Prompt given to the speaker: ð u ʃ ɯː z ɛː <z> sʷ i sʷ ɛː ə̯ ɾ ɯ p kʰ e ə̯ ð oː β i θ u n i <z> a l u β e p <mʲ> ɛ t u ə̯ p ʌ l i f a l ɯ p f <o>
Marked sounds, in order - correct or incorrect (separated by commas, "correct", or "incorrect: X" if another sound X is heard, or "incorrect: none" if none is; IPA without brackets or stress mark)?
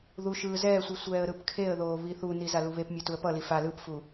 incorrect: none, correct, correct, incorrect: u